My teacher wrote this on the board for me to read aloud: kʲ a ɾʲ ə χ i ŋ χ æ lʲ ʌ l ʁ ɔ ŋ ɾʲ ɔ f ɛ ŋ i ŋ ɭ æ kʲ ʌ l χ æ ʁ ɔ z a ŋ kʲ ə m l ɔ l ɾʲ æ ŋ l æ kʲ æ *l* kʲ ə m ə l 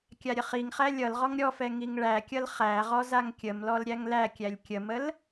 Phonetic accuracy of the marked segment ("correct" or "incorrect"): incorrect